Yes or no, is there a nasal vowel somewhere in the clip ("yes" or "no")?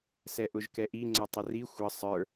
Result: no